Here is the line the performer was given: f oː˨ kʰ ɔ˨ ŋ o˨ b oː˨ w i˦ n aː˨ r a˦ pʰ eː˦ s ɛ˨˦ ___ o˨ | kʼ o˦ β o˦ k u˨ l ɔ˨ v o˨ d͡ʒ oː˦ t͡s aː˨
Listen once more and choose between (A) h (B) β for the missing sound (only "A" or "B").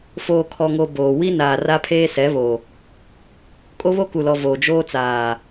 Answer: B